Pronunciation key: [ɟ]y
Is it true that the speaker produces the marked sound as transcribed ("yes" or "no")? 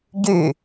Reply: yes